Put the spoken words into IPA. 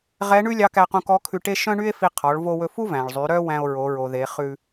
ʁ ɛ˧˥ ɳ ʉ˥ lʲ ɑ˧˥ k æ˧ q ũ˧ k ɔ˧˥ kʰ ʉ˧ ʈ e˥ ʃ œ̃˥ ɳ y˥ e̯ f i˧ qʰ ɔ˩˧ ɭ v o˧ w ɵ˧ f u˥ v æ̃˩ ɭ zˤ y˩˧ ɾ œ˥ w æ̃˧ o̯ ɹ o˩˧ ɹ o˩ ð e˩˧ χ ʉ˧

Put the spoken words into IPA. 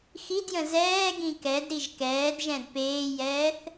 x i d j ə̃ z ɛː ɡ ĩ k ɛ d ɾ i ʒ k ɛː d ʒ ɛ̃ d p eː j ɛː θ

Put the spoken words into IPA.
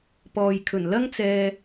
p ɔː˨ j kʰ ɵ˨˩ n l ɐ˥ ŋ t͡s ɛː˨

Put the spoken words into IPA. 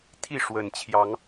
t̪ʰ i˥˨ ʂ w ə˨˩ n t͡ɕʰ j ɑ˨˦ ŋ

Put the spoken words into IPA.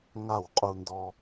ŋ a˦˨ w qʼ u˧ n d ɔ˧

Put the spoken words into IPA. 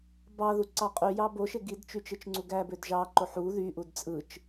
b ɑ ð u ǀ ɑ qʼ y j ɑ b o ʃ e ɡ i d t͡ʃ y t͡ʃ ɯ t͡ʃ ŋ͡ǀ u ɡ æ b ø d ʒ ɑ ǃ o ħ u ð y ʔ u d t͡sʼ ɯ t͡ʃ

